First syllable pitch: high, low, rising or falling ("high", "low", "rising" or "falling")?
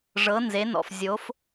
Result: rising